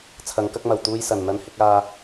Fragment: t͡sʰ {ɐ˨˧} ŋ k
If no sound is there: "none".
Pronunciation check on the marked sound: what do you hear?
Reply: ɐ˨˧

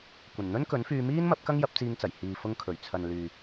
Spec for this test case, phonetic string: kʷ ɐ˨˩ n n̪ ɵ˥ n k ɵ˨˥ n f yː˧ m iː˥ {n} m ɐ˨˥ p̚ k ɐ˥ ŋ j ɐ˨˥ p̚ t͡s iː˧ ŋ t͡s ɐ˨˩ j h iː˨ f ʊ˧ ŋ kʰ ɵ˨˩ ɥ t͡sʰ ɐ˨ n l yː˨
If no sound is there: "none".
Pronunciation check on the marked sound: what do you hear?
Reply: n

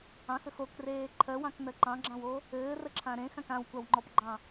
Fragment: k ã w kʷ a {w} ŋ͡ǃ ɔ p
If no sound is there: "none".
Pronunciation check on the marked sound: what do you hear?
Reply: w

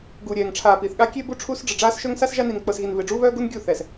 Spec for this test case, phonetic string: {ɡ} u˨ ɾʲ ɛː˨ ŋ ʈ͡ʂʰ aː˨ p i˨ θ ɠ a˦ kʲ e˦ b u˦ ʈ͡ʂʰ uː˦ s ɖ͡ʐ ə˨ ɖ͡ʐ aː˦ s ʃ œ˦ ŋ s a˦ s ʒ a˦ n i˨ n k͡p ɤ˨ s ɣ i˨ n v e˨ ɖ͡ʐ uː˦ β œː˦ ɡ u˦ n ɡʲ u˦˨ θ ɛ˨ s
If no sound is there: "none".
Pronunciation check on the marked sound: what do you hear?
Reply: ɡ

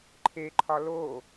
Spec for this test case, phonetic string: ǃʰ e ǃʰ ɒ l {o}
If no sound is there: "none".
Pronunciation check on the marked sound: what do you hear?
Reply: o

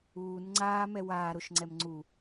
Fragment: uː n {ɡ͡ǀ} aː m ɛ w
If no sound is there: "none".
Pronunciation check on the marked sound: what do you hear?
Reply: ŋ͡ǀ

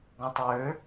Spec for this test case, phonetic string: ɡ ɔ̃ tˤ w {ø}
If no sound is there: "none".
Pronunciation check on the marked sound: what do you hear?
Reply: ø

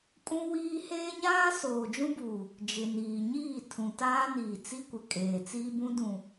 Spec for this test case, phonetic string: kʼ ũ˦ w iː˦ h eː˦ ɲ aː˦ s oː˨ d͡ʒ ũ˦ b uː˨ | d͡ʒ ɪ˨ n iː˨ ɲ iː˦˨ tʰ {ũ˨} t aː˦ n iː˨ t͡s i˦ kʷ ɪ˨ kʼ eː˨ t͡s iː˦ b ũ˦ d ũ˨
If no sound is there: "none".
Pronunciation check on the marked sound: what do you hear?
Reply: ũ˨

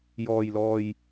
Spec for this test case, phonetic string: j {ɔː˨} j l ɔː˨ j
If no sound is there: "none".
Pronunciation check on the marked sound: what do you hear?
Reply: ɔː˨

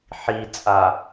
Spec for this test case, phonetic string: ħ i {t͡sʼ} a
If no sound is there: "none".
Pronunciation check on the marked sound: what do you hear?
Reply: t͡sʼ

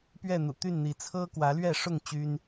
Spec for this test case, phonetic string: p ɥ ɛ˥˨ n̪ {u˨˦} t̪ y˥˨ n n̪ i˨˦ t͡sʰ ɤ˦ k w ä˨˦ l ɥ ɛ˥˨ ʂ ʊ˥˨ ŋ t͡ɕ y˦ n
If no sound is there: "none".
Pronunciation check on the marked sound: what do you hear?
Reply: ṵ˨˩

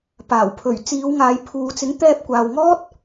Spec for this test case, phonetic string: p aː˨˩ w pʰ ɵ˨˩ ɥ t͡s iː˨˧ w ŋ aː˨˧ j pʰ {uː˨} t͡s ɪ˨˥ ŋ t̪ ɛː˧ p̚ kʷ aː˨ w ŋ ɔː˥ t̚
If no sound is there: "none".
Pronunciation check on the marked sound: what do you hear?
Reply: uː˨˧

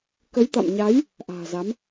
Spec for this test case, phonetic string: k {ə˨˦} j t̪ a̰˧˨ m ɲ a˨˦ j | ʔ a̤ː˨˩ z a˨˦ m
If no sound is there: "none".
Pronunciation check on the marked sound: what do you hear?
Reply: ə˨˦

